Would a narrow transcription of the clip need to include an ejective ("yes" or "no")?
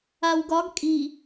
yes